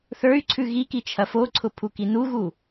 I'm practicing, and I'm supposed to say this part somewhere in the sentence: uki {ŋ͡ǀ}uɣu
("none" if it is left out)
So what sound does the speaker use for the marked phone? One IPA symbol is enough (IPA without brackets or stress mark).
n